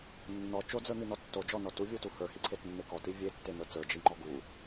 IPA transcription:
nː ɔ t͡ʃ o d͡z ə˞ n̪ i n ɔ tː o d͡ʒ ɔ n ɔ t u vʲ u t u h ə˞ h i ǀʰ e t nː e k ɔ t i vʲ e tː e n ə˞ t͡s ə˞ d͡ʒ i ŋ͡ǃ ɔ ɡ u

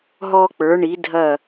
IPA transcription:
ɦ ɔ˧ k͡p ə˞˩˧ ɳ i˩˧ dʱ ɐ˧˩

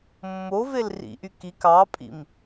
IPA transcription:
mː o v e l r ḭ ʔ y k i k ɑ pʼ ḭ m

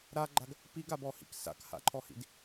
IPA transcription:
ɾ a ɡ͡ǃ a ɡ | p i ɡ a b ɔ h ḭ k s a̰ k h a̰ ǃʰ ɔ h ḭ d

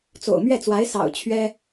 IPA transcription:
t͡s o̰˨˩ ʊ̯ m ɥ ɛ˥˩ t͡s w a˧˥ ɪ̯ s ɑ̰˨˩ ʊ̯ t͡ɕʰ ɥ ɛ˥

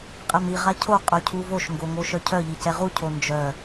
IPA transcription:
qʼ ɛ m i ʁ a cʰ o qʼ œ cʰ u v o ʃ ŋ ɡ o ŋ o ʃ œ cʰ œ ʎ i c ɛ ʁ u cʰ o n d͡ʒ œ

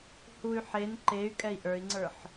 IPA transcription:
h u y̯ ħ e n ǃ e y̯ kʼ ɛ i̯ ʔ ə˞ i̯ ŋ͡ǀ ə˞ ħ

